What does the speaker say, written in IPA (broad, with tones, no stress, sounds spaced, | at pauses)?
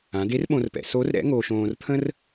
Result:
ã˩˧ d e˧˥ r ɓ õ˧ r p ɛ̰˩˧ s o˧˥ r ɾ ɛ̰˧˥ ŋ o˧ ʃ õː˧ r t̪ʰ ə̃˥ r